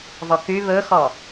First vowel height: mid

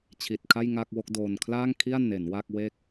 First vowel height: high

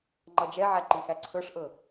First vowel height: mid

